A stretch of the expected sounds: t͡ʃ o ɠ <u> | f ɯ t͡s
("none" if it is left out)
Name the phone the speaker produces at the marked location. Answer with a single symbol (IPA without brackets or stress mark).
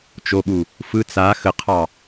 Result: u